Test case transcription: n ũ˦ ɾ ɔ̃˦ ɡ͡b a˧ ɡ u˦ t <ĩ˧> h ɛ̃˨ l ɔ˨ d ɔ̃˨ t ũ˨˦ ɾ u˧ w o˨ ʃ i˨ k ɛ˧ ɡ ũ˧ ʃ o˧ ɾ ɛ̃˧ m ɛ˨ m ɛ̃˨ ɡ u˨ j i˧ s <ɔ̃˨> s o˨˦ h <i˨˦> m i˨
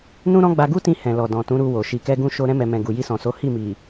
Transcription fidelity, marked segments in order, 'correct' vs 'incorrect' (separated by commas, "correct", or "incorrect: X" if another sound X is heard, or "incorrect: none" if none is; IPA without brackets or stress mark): correct, correct, incorrect: i˦˨